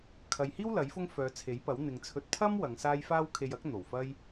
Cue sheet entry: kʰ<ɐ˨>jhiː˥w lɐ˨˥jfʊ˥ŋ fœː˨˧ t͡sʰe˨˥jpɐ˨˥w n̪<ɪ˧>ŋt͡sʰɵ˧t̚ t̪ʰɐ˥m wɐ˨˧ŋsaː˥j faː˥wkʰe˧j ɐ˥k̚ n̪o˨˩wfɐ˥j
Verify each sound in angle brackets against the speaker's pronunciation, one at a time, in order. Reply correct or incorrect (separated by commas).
correct, incorrect